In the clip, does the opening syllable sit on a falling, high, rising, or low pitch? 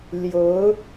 rising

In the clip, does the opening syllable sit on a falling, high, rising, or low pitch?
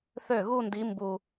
falling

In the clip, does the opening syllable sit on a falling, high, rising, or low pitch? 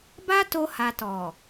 high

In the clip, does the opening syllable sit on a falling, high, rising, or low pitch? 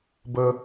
high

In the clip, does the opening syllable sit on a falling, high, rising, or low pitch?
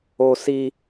high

